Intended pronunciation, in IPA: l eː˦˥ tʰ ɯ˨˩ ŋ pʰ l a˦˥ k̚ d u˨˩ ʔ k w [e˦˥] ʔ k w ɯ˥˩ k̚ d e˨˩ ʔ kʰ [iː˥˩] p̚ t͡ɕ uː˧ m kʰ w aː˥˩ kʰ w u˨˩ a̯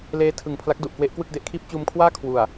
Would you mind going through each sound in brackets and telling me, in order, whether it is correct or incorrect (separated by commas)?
correct, correct